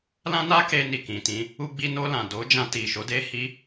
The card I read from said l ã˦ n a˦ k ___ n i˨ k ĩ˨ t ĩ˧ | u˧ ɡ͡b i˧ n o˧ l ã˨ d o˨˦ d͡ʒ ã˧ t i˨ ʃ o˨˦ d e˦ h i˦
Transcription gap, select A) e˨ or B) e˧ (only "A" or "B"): B